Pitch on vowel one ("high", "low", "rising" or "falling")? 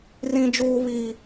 high